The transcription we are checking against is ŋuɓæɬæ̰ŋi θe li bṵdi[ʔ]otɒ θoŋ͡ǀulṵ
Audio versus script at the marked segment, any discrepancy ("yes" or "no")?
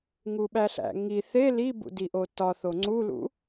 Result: no